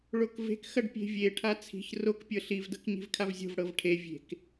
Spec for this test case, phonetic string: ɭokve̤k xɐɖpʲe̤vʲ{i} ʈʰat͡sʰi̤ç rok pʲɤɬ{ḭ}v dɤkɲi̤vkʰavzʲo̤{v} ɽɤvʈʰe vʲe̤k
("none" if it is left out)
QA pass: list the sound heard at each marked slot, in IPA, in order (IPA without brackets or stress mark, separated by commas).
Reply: e, i, v